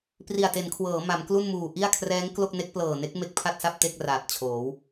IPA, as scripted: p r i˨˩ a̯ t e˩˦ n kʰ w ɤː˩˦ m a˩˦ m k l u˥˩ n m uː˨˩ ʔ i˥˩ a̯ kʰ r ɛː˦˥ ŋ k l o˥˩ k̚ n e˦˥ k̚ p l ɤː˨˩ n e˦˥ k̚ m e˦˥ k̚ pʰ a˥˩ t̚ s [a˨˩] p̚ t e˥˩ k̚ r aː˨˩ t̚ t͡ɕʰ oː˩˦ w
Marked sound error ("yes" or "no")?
yes